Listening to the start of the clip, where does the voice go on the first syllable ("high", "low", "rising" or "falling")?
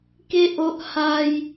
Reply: high